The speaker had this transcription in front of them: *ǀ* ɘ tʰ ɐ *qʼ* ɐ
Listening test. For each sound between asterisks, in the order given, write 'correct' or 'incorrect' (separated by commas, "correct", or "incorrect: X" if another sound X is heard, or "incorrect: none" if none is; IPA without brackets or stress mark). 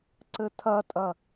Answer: correct, incorrect: tʼ